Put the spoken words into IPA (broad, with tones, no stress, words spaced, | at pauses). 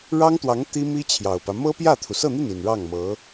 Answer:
ɻɑ˥ŋt̪wɑ˧˥ŋ t̪i˥mi˥ t͡ɕʰjɑ˨˩ʊ̯pä˦ mɤ˥pjä˥˩t̪ʰu˩ sɤ˥˧n̪i˥˩ni˨˩n ɻɑ˥˩ŋmɤ˧˥